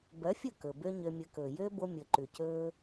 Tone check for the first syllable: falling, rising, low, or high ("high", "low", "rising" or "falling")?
rising